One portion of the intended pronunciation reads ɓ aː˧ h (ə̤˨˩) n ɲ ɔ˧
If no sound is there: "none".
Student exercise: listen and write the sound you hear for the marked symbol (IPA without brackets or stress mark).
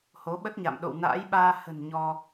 ə̤˨˩